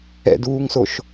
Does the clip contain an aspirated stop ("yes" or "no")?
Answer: no